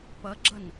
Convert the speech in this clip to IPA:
p ɐ ɡ͡ǁ ɐ n

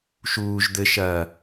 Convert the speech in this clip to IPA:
ʃ uː ʒ d̪ ɘ ʃ ɐː

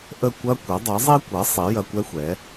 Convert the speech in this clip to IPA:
ʔ ə˥˩ kʷ ɐ˥ kʷ ɐ˩˥ dˤ ɐ˩˥ zˤ i˥ kʷ ɐ˩˥ sˤ i˩˥ j ɐ˧ kʷ ɛ˥ xʷ ɛ˩˥

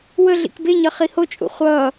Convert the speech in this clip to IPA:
w ə ɮ ḭ k b e ɲ ʌ χ i h o t͡ʃʼ ṵ χʷ ʌː

